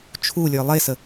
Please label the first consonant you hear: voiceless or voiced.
voiceless